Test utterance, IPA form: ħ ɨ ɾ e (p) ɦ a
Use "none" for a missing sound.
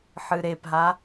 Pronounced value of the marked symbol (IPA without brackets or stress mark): p